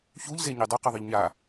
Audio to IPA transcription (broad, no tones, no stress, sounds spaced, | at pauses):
ç u ʎ z e ɲ i dˤ u q ɯ ðˤ ɯ ʎ ɲ a